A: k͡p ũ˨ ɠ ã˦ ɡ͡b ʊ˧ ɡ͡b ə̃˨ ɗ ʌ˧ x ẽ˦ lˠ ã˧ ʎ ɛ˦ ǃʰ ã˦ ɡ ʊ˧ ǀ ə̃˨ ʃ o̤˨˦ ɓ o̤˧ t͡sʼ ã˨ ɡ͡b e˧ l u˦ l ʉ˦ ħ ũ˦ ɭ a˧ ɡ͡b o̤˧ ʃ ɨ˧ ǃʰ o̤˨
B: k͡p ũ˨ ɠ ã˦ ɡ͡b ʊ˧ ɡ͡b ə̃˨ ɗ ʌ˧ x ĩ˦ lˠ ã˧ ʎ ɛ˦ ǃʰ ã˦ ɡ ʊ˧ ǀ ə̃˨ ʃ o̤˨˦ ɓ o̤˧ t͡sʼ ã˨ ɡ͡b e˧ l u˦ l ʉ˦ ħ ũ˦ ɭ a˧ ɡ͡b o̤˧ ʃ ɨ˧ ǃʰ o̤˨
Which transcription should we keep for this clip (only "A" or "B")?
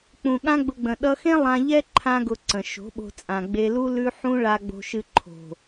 A